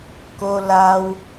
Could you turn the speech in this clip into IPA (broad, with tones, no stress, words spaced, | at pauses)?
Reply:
ko˧ la˧w